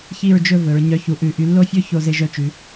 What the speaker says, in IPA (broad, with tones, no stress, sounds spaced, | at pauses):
ç i˥˧ ɹ d͡ʒ ɵ˥˧ v ɵ˩˧ ɹ ɲ œ˧ ç u˧ ʔ ʉ˧˩ ʔ y˧ lː o˥ fʲ ɵ˥ ç o˧ z e˧ ʒ œ˥˧ t͡ʃ ʉ˩˧